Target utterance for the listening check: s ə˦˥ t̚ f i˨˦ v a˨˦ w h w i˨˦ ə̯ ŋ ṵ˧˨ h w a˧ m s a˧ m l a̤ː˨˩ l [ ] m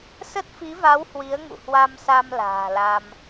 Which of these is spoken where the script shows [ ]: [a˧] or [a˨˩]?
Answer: a˧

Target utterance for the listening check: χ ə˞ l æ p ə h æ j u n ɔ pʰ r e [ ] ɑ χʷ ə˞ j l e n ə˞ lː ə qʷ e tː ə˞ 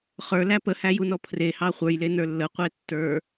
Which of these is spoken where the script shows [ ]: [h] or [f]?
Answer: h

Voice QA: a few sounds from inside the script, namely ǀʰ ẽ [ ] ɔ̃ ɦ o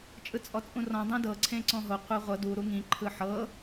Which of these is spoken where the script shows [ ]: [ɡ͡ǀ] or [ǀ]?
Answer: ǀ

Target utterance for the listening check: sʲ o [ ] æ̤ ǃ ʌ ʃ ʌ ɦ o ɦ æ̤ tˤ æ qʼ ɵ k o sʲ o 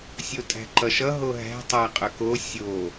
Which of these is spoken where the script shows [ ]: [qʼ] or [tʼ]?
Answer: tʼ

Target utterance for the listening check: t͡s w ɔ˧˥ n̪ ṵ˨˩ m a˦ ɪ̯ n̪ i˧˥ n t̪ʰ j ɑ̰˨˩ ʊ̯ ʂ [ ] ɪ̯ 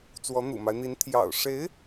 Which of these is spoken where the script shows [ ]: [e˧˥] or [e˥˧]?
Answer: e˧˥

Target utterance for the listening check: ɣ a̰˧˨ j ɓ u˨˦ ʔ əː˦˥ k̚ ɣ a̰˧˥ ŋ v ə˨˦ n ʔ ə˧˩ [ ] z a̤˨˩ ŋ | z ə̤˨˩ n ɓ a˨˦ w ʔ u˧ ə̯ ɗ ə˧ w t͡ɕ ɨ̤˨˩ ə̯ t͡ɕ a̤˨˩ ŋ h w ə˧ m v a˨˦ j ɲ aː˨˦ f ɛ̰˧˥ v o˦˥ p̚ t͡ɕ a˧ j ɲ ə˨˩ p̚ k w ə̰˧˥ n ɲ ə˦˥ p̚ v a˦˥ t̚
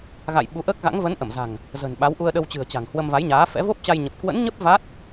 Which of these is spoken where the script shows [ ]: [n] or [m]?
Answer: m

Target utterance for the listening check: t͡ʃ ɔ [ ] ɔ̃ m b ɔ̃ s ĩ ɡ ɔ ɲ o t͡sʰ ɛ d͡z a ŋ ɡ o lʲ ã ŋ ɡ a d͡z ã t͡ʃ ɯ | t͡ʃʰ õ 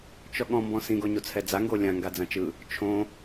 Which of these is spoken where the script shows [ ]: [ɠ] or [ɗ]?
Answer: ɠ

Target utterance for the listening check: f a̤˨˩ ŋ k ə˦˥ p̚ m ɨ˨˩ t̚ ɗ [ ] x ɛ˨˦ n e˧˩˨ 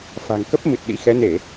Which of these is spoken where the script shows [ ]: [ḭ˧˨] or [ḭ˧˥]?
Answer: ḭ˧˥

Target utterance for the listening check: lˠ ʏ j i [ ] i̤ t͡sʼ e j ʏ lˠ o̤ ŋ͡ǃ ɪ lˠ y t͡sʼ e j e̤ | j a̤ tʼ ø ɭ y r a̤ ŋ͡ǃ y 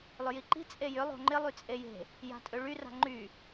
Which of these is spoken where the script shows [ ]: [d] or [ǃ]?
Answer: ǃ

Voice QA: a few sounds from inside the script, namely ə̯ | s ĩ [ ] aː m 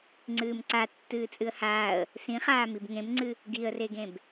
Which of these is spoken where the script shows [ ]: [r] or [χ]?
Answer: χ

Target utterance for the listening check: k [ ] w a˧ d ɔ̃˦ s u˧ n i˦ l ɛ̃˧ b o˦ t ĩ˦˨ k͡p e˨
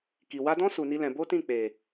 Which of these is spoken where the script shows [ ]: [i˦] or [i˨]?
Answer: i˨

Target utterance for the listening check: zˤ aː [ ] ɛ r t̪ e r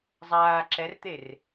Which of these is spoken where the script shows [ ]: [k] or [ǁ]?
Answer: ǁ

